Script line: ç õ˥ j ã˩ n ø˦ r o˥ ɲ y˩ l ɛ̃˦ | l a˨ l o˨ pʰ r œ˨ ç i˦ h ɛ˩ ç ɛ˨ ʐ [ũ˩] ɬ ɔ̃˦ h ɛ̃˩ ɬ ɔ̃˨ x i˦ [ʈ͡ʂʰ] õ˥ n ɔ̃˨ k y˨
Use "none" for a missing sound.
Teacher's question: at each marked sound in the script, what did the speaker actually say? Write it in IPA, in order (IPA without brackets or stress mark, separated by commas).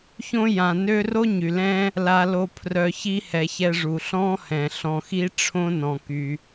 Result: u˩, ʈ͡ʂʰ